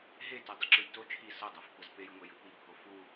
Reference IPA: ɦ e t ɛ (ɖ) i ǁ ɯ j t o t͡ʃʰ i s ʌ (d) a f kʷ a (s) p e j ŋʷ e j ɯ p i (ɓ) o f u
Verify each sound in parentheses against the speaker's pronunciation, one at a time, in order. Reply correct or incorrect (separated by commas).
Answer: incorrect, incorrect, incorrect, incorrect